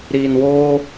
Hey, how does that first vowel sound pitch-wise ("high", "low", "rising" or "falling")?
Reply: low